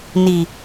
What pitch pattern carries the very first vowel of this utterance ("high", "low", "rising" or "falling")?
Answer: low